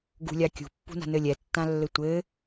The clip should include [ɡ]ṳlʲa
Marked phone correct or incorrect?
correct